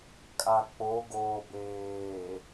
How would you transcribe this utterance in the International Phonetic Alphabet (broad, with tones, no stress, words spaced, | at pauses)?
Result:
kʼa˨k͡po˨˦ɡoː˨ beː˨